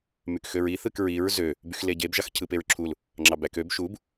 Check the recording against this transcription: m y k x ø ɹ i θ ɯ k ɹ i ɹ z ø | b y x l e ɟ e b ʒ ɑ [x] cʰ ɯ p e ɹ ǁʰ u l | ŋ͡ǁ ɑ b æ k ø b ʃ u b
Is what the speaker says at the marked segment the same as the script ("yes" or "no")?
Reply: yes